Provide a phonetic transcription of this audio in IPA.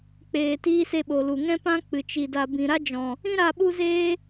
k͡p eː˨ t iː˧ s e˧ ɓ o˨ l u˨ ŋ ɛ̃˦ p ã˦ k͡p ɨ˨ t͡ʃ i˨ d a˨ b ĩ˨ ɾ a˦ d͡ʒ ɔ̃˨ | ĩ˦ ɾ a˧ ɓ u˦ z eː˦

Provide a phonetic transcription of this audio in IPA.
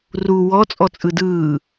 r u w ɔ t͡sʼ ɔ t͡sʼ ɯ d ɯː

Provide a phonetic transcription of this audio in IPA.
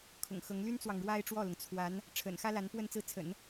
kʰ ʊ̰˨˩ ŋ x ɤ˧˥ ŋ l y˥ n t͡s w ɑ˨ ŋ ɻ w a˥ ɪ̯ ʈ͡ʂ w ɔ˥˩ l ʊ˩ ŋ t͡sʰ w a˧˥ n | ʈ͡ʂʰ ə̰˨˩ n x ä˥ l a˧˥ n p w ə˥˧ n t͡s ɹ̩˥˩ t͡sʰ ə̰˨˩˦ n

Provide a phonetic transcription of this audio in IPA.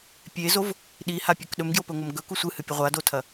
pʲ e z o v | ɗ i h a pʲ ɵ k ɗ ɵ m ɡ j o p ɵ ŋʷ ɐ m ɡ ɵ k u sʷ ɨ h ɨ pʲ ɐ ʁʷ a d o tʰ ɐ

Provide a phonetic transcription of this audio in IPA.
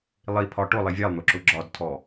lˠ i pʰ ɒ ʈ ʊ lˠ i vʲ ɛ lˠ n̪ ʊ ǁ ʊ ɡ͡ǁ ɒ d tʰ ɔ

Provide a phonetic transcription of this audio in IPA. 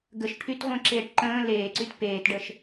ɡ ə ʃ ʈʰ y t ʁʷ ẽ ǁ eː ʈ ǃ ə̃ː l eː ǀ y t p eː t ɖ ə ʃ

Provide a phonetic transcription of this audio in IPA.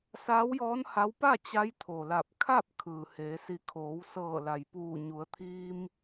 s aː˧˥ w j ɔː˧˥ n h a˧˥ w p a˥˨ t͡ɕ a˧˥ j t̪ʰ o˩ l a˧˩ p̚ kʰ a˥˨ p̚ kʰ ɯː˩ h eː˩˧ s i˧˩ kʰ oː˩˧ w s ɤː˧˩ l a˩ j p uː˧˩ ɲ u˩˧ ə̯ t̪ʰ iː˧ m

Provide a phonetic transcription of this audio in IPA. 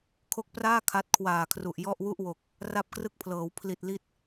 kʰ o˦˥ k̚ p r aː˥˩ kʰ a˦˥ t̚ kʰ w aː˨˩ kʰ r u˨˩ ʔ j ɔ˥˩ ʔ w u˥˩ ʔ w o˨˩ k̚ | r a˥˩ p̚ k r ɯ˥˩ k̚ pʰ l ɤː˩˦ w pʰ l i˨˩ t̚ l i˦˥ t̚

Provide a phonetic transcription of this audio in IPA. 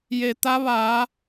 j e˩ t̪ a˧˥ ʋ aː˩˧

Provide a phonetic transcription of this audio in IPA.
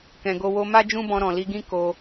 k ɛ̃˨ ɡ o˧ w o˧ m a˦ d͡ʒ ũ˦ b ɔ̃˧ ɾ ɔ̃˨ l i˧ ɡ ĩ˦ k o˧

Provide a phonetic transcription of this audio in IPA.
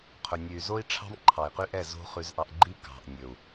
qʰ ɵ˨ nʲ ʉ˨ y̯ z o˦ i̯ ʈ͡ʂʰ ɑ̤˦ m ǃʰ ɑ˨ i̯ q y˦ ʔ ɛ˦˨ z o̤˦ χ ʉ˦ z ʔ ɑ˦ ʔ ɡ͡ǃ i˦ k ɑ̤˨ ʔ nʲ ɵ˨ u̯

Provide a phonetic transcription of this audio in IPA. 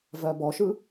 v ɜ b ɔ ʃ ɯ

